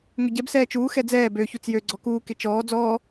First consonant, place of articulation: velar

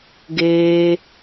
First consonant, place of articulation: velar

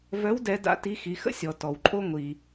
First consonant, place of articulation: labial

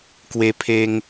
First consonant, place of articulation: velar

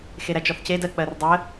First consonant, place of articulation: velar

